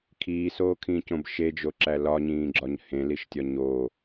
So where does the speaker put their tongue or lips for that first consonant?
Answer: velum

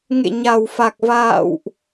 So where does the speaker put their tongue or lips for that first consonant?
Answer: velum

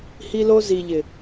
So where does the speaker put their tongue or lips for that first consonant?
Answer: throat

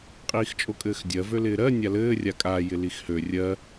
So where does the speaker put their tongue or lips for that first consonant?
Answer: uvula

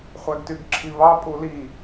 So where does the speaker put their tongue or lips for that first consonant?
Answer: uvula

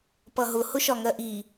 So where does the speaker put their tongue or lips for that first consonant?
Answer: lips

